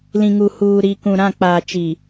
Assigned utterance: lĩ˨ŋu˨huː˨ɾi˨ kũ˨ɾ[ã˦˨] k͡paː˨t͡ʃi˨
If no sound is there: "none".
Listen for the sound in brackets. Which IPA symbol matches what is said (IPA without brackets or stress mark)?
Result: ã˦˨